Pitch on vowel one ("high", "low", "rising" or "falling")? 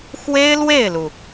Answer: high